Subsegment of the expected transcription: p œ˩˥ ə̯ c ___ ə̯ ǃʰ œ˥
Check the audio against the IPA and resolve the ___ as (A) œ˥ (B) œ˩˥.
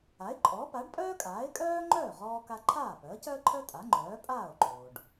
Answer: A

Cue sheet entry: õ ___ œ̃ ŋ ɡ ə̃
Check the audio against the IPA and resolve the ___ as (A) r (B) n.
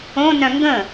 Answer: B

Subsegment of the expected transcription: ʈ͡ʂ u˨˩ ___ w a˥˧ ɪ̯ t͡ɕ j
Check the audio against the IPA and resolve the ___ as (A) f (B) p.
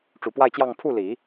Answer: B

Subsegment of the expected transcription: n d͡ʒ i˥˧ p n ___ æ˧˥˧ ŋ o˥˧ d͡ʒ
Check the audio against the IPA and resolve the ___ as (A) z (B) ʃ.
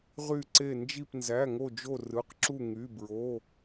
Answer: A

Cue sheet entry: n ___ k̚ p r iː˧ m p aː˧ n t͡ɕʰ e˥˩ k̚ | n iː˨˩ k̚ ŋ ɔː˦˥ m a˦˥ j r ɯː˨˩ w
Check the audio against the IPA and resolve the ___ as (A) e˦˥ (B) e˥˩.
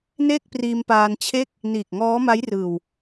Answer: B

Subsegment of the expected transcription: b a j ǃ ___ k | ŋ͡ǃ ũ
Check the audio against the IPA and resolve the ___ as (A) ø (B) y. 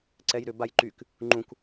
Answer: B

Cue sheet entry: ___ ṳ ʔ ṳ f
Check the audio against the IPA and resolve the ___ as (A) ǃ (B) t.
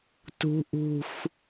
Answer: B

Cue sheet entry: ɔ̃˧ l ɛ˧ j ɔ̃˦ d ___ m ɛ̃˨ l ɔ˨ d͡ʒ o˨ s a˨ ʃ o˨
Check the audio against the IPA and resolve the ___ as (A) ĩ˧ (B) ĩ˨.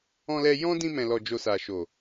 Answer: A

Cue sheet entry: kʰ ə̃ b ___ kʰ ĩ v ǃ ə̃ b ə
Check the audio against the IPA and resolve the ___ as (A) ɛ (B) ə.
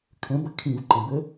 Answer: B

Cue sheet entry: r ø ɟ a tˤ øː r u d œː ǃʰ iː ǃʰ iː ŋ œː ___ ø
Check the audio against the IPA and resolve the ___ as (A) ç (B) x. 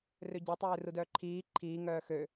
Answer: B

